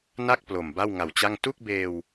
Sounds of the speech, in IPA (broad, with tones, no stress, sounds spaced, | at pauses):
n a˥˩ k̚ p l o˨˩ m b a˥˩ w ŋ a˨˩ w t͡ɕ a˥˩ ŋ t u˥˩ k̚ b eː˧ w